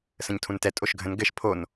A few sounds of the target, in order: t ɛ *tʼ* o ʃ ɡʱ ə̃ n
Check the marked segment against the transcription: correct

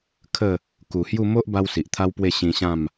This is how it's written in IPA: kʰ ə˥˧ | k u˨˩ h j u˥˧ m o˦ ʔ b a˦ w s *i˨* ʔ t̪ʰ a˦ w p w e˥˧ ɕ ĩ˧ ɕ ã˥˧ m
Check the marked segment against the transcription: correct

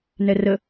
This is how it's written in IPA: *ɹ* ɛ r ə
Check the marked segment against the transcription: incorrect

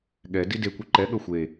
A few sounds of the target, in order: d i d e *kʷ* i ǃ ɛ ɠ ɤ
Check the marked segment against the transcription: correct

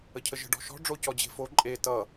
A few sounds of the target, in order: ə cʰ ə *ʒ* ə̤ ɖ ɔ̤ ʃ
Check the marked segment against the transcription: correct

